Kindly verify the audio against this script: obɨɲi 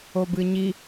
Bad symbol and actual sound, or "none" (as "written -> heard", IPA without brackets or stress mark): none